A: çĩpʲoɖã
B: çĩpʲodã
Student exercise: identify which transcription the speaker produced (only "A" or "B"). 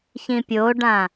A